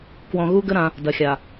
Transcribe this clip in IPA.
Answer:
k w ɔ̃˨ ɣ u˦ ɡ ə˦ ɾ ã˦ | d ɐ˨ xʲ a˨

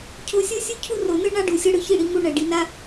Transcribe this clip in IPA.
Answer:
cʰ o˧ sʲ ɤ˦ sʲ u˦ cʰ u˦ r o˨ n ɯ˦ ɳ a˦ ɖ u˨ sʲ ɤ˧ ɽ ɯ˧ ç i˦˨ ɽ i˨˦ ŋ u˦˨ ɳ ɛ˨ ɖ i˧ n a˦

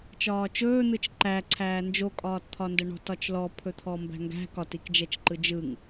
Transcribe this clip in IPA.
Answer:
t͡ʃ ɒː t͡ʃ ɵː n̪ ɯ t͡ʃ ǃ æ ǀʰ æː n d͡ʒ o kʼ ɒː t t̪ʰ ɒ n d ə ɳ ɔ̤ t ɒ t͡ʃ l ɔ pʰ ɵ t̪ʰ ɔ m b æ̤ ŋ ɡ æ̤ k ɒ t i k d͡ʒ ɛ t͡ʃ ǃ ɯ d͡ʒ ɯ ŋ

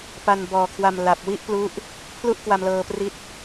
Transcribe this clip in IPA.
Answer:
p a˧ n b ɔː˨˩ kʰ w a˧ m l a˨˩ p̚ w i˥˩ ʔ p l u˦˥ ʔ | pʰ l u˥˩ ʔ k w a˧ m l ɤː˧ p r i˦˥ t̚

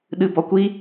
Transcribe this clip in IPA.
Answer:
ɗ ɨ b ɔ kʷ i

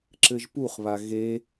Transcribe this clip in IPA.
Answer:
ǁ ɘ ʒ p u χ β a ɣ e

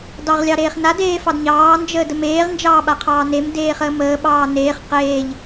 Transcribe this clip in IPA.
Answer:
d ɑ ʁ lʲ ɑ ɾ eː χ n a d eː f ɑ d ɲ ɑː n d͡ʒ əː d ə m eː ʁ n d͡ʒ ɑː ɓ a qʰ ɑː n e m d eː χ əː m əː ɓ ɑː n eː χ q eː ʎ

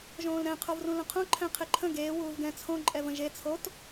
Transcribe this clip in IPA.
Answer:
ʒ õː l ɾ ɛ̃ qʰ o v r ũ l ə̃ qʰ õ ǃʰ ɛ̃ qʰ ɪ ǃʰ ə̃ ɡ eː w uː v ɡ ɛ̃ t͡sʰ õ ǃʼ ɛ v ə̃ ʒ e t͡sʰ o t

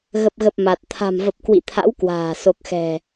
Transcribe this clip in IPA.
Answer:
ɣ ə˨˩ p̚ ɣ ə˨˩ p̚ m a˨˩ t̚ t̪ʰ a̤˨˩ m v ə˨˩ p̚ k w ḭ˧˨ t̪ʰ a̰˧˥ w k w a̤ː˨˩ s o˨˩ k̚ x ɛ̤˨˩

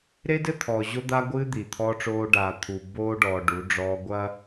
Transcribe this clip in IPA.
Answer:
ɾ e˦ d ɘ˦ t̪ʰ ɔː˨ ʑ o˦ d̪ a˦ ɡʷ ɨː˦ d̪ i˨ t̪ʰ ɔː˦ ʈ͡ʂ oː˦ ɖ aː˨ t̪ʰ u˨ b oː˦ ɖ ɔː˨ ɖ u˨˦ ɖ͡ʐ ɔː˦ ɡʷ ɐ˦

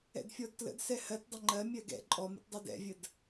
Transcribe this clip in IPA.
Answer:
ɛ̰ d fʲ ɔ d t l ə̰ d s ɛ h ɜ t dˤ ə ŋ͡ǃ ɜ mʲ ɜ ɡ ɛ̰ ǃʼ ɔ m ə̰ t dˤ ɛ d ɛ̰ vʲ ə d

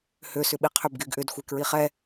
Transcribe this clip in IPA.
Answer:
h ø s ʏ ɓ i qʰ ø b ɡ y ɡ ʔ ʏ d xʷ e k ɹ i χ ɛ

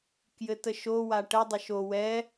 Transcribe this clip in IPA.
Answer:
k j ɘ t ə ʃ o w a ʈ ə dˤ ə ʃ o w ɛ

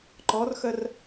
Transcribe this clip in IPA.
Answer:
ǃ ɔ r x ə r

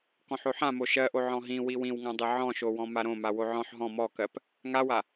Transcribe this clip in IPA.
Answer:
k ɔ̃ ħ o ħ ã m o ʃ ɜ ʔ o ʕ ɔ̃ ɦ ĩ w i w ĩ w ŋ ã dˤ i ʕ ɔ̃ ʃ o w ɔ̃ m a ɾ õ m a w o ʕ ɔ̃ ħ ɦ ɔ̃ m ɔ k ɜ p | ŋ a w a

